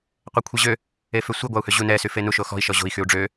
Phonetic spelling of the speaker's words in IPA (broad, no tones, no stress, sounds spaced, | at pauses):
qʷ ɛ kʷʰ i ʑ ø | e f ø sʷ i ɡʷ a u̯ h ø ʑ u n ɛ s y f e n u ʃ o x ɔ̤ i̯ ʃ ɔ ʑ o̤ i̯ x y u̯ ɖ͡ʐ ø